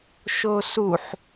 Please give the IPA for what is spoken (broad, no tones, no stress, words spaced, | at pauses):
ʃosuħ